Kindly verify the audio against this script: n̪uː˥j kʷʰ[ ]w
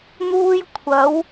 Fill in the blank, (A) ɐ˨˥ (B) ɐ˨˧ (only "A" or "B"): A